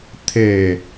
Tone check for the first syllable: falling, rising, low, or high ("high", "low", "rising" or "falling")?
falling